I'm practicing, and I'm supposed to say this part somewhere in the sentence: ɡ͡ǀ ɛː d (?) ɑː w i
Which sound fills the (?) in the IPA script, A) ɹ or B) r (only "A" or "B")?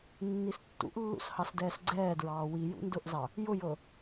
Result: A